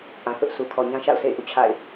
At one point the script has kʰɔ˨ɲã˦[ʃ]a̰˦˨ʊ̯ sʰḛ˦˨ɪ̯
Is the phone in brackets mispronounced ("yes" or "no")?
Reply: no